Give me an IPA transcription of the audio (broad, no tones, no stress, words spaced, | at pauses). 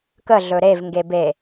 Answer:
kə ɮɵɾev ŋɡebe